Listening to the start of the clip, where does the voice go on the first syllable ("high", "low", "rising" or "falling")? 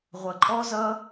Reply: low